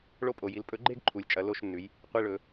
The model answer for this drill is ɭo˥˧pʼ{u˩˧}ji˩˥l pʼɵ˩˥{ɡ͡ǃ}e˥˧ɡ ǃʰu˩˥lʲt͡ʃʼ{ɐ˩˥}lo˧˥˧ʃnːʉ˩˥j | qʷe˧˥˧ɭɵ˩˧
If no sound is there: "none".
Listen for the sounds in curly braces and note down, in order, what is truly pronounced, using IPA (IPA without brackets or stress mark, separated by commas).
o˩˧, ɡ͡ǃ, ɐ˩˥